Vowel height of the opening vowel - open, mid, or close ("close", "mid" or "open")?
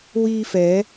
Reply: close